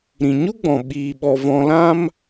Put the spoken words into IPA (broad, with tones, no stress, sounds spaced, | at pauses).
ɾ ĩ˨ ɲ u˦ ɡ͡b ɔ̃˨ ɓ iː˧ ɓ ɔ˧ v ɔ̃˧ l ã˦ m